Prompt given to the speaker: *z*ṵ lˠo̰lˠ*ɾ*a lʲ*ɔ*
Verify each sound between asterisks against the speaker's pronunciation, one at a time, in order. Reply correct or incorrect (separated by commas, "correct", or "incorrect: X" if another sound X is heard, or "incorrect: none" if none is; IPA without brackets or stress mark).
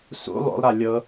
incorrect: s, correct, incorrect: ɤ